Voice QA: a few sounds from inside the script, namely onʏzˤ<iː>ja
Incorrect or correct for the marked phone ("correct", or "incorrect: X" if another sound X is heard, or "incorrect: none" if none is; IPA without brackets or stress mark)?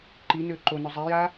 incorrect: i